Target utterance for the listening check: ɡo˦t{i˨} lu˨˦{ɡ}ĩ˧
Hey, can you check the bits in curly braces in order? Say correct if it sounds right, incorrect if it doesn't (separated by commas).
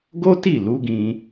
incorrect, correct